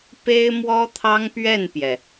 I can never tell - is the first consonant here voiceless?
yes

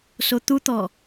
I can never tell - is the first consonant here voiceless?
yes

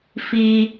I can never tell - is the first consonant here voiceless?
yes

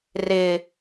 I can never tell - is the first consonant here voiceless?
no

